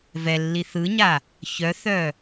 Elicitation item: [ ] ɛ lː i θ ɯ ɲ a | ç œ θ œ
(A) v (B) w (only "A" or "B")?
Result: A